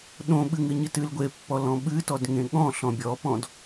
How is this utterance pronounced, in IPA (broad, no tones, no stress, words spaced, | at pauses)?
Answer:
ɗõɓɨ ŋɨɲɨtɨl ɡʷepːɔlɔ̃ ɓɨtɔd ŋẽɠɔ̃ ɬɔ̃bʲɔpɔ̃d